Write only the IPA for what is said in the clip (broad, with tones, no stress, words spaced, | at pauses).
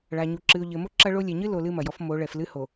ɭa˨ɲu˨ ǁɨ˨ʊ̯ʎɘ˨mo˦ ǁɐ˦ɭo˦ lʲɛ˨ɲɨ˦lo˨ lɨ˦mɐ˨jɔ˦f mo˨˦ɭɛ˨flɨ˦ ho˨